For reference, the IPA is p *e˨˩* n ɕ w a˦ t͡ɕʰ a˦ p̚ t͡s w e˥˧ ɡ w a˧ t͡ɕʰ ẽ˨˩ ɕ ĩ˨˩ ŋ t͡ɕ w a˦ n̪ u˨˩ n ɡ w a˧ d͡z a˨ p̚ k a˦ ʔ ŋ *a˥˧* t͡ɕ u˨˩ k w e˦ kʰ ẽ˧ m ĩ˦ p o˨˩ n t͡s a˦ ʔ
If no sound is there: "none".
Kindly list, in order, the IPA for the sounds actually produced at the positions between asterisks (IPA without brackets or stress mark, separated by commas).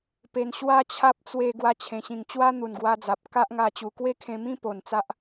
e˨˩, a˧